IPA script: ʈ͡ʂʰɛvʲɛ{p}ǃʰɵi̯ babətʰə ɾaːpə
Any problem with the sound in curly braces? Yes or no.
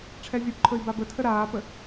no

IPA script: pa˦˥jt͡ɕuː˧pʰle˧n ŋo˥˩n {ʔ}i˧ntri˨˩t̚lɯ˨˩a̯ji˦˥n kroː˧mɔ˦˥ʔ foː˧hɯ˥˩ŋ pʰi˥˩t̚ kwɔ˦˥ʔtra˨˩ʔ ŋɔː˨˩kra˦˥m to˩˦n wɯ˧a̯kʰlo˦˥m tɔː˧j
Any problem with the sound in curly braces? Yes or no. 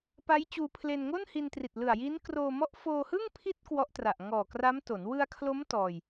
yes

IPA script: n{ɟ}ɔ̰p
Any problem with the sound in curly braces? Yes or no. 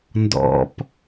yes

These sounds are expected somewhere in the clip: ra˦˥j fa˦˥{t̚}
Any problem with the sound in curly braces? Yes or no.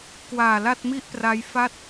no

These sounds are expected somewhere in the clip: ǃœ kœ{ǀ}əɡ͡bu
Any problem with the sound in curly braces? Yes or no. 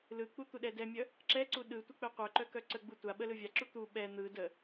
no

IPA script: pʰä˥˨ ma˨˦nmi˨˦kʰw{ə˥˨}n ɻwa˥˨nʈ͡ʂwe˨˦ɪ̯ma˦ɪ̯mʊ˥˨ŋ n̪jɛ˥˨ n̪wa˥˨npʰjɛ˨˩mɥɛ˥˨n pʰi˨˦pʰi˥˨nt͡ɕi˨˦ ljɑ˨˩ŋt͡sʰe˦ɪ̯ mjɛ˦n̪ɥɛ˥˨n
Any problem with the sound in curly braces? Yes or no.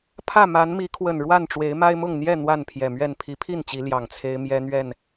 yes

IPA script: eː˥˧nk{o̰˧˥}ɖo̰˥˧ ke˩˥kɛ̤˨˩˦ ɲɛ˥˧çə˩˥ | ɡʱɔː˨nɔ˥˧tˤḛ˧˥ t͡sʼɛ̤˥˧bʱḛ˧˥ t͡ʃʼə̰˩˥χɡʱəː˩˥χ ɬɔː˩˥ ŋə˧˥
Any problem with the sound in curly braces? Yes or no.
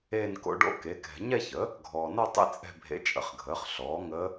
no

